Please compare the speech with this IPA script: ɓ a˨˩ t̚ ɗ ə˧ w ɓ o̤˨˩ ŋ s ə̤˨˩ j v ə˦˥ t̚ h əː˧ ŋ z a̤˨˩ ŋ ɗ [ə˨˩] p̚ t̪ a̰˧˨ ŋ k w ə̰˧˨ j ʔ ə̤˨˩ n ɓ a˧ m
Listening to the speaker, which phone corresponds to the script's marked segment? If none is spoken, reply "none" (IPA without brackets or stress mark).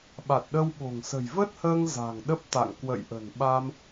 ə˦˥